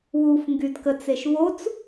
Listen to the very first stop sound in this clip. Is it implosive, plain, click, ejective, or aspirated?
plain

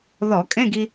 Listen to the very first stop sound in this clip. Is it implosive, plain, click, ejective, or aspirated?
ejective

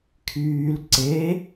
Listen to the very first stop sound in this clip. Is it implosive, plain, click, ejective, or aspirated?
aspirated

